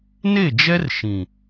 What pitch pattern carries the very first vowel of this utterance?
falling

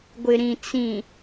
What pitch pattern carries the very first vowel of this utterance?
low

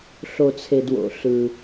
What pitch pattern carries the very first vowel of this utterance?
low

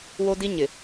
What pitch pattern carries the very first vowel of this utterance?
high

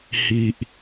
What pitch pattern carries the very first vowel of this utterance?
low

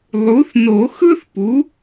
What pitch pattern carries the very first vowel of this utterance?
rising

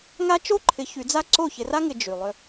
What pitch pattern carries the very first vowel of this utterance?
high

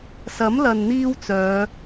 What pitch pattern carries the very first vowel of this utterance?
rising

